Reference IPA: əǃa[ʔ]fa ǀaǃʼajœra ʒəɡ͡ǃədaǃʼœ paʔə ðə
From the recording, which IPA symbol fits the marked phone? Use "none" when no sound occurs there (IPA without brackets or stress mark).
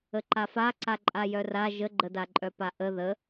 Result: none